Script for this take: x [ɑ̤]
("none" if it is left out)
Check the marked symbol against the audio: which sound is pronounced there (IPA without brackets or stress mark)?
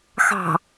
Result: ɑ̤